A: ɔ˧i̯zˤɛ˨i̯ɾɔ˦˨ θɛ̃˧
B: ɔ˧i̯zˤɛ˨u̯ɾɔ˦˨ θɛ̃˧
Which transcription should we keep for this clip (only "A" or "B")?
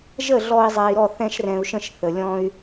A